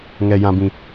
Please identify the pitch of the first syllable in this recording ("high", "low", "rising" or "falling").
low